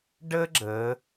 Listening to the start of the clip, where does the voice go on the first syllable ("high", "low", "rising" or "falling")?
high